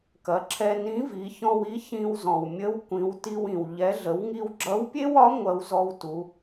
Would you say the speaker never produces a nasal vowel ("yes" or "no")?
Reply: no